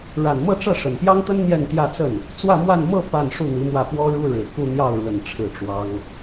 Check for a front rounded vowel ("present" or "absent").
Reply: absent